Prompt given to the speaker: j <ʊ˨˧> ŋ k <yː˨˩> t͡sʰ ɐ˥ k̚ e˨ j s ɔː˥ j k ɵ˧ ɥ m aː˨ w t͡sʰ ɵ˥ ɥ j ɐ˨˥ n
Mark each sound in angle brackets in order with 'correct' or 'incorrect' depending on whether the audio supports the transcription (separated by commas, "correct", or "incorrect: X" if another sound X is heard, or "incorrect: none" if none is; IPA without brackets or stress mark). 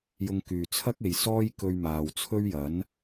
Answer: incorrect: ʊ˧, incorrect: yː˨